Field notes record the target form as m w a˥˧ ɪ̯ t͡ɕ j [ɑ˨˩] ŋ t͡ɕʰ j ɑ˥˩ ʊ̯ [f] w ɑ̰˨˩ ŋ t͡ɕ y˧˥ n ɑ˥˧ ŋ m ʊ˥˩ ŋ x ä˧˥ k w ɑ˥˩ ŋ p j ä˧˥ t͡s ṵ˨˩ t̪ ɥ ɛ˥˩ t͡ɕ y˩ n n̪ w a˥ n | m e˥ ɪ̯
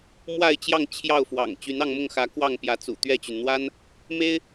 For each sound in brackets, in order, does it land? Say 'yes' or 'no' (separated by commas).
no, yes